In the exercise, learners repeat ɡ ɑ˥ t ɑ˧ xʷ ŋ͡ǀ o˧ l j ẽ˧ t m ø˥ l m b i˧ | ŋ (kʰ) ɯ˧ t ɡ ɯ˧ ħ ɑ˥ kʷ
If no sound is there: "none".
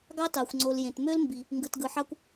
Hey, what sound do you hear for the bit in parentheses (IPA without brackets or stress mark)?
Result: ɡ